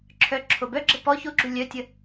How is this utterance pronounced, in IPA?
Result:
ǁʰœ ǁʰobœɡ͡ǁə pɔ çoɡ͡ǁu lʲœtʲə

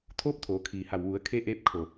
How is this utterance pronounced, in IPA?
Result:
t̪ʰoː˧˥p̚t̪ʰoː˩˧ kʰiː˩ha˧˩w ʋu˩˧ə̯kʰe˧ ʔeː˧˥p̚ kʰo˧˩

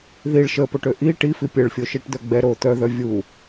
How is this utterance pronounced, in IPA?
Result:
ðiɭ ʃəpoʈø ʔi ʈifi pʲəɭfʲoʃiʈd̪œ ɡ͡bɛ ɾo t̪œðœ vʲu

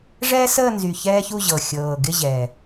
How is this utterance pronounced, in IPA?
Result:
ʐɛː˥səː˥˧nzy˨˩ çɛː˥çu˥˧ʑɤ˨˩ xʲɤː˨˩ɡɪ˥˧ ʑɛ˨˩

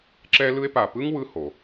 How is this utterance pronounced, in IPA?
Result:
ǁɛ˥lɯ˥e̯ pa˨pɯ˥ŋ wɯ˦ ho˩

